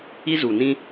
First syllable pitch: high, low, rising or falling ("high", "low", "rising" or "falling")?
high